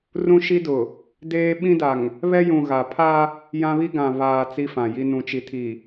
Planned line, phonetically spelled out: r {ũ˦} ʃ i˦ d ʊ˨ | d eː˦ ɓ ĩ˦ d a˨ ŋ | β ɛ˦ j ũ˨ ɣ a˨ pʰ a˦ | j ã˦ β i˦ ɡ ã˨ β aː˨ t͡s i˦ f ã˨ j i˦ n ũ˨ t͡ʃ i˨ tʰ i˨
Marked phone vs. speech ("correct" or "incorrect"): correct